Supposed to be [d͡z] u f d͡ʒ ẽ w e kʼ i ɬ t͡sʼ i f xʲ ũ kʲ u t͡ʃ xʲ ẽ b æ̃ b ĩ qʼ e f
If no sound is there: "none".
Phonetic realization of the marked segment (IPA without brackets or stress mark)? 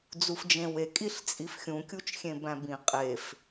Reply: d͡z